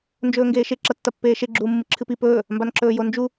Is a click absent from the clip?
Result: no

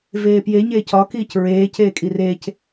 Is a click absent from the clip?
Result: yes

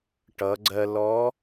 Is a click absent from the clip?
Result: no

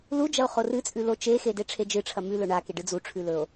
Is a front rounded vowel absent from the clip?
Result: yes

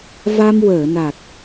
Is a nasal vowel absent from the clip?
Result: yes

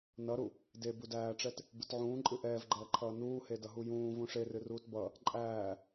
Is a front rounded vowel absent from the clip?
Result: yes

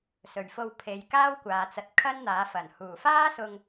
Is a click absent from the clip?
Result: yes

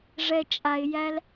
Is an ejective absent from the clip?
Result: no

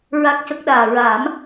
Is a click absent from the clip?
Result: yes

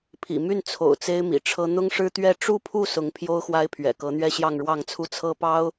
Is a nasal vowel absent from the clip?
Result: yes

